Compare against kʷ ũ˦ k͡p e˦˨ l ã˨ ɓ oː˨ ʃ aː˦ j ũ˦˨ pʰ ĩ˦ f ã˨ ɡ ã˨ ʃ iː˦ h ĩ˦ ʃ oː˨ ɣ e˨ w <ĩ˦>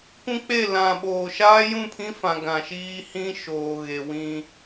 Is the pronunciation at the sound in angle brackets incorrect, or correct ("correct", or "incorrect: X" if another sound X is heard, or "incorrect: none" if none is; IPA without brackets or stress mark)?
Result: correct